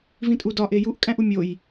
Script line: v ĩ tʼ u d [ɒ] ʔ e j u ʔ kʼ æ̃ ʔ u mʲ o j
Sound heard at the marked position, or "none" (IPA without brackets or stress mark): ɒ